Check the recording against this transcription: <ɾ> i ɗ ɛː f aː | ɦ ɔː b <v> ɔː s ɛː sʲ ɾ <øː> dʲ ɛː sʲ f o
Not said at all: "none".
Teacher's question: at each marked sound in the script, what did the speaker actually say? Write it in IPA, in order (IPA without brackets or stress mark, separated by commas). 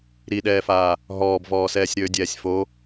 ɾ, v, øː